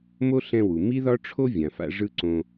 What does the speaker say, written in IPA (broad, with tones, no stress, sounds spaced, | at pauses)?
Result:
m o˥ ɬ ɛ̃˦ w u˨ m i˥ ð ɒ˥ ʈ͡ʂʰ o˥ vʲ ã˨ f a̰˦ ʐ ɯ˥ ǀ õ˦